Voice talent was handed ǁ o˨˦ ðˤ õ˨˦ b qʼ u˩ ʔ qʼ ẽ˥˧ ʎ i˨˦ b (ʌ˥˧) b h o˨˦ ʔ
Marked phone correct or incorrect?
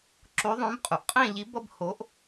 correct